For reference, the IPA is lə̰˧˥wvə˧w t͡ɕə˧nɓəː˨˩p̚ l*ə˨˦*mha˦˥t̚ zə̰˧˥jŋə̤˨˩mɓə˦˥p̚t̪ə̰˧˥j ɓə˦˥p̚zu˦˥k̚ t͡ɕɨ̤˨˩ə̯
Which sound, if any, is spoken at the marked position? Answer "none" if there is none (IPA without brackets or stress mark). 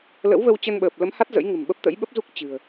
ə˨˦